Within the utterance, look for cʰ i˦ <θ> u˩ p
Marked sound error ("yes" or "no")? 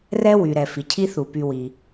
no